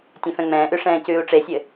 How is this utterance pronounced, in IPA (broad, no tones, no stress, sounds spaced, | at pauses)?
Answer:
tʲ ɛ̃ f ɛ̃ ŋ͡m ɛ̃ː ʔ ʉ ʂ ɛ̃ː c ʉː u̯ ʈ͡ʂ e sʲ ɘ